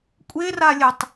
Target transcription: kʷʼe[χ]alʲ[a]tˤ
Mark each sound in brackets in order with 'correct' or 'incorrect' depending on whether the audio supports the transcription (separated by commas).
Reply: incorrect, incorrect